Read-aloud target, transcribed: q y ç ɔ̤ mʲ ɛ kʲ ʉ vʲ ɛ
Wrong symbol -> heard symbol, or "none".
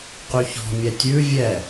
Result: kʲ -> tʲ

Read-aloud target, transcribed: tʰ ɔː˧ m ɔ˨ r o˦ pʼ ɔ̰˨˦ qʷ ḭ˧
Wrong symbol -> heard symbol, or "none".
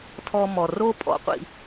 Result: none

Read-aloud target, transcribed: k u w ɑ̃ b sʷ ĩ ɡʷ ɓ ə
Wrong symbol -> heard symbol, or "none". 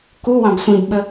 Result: ɡʷ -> b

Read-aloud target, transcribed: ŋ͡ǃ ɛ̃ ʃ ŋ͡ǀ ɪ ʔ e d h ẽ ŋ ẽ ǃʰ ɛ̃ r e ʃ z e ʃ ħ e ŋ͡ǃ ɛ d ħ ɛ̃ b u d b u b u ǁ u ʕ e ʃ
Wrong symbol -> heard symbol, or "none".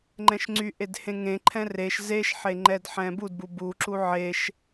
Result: ɪ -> y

